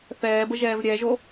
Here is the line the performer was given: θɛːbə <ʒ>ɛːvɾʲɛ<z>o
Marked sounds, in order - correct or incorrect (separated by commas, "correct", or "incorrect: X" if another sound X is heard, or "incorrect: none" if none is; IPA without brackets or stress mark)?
correct, incorrect: ʒ